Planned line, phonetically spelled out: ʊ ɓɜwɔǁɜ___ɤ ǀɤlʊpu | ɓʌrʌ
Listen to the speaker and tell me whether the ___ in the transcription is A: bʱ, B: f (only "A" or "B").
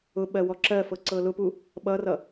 B